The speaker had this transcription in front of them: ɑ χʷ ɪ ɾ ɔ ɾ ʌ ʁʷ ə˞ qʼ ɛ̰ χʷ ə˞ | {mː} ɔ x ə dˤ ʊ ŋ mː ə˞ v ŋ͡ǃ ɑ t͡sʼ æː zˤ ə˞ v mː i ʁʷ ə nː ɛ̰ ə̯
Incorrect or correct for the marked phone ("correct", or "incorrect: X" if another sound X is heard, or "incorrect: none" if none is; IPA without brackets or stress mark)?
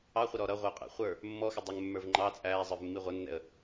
correct